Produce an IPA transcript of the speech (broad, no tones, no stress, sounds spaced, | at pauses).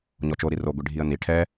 ɲ ɔ t͡ʃ o ɾ i r o ɡʷ i ɖʱ i ə̯ n i ʈʰ ɛ